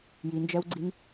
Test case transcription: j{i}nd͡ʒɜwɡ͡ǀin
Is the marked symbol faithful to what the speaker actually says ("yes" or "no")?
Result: yes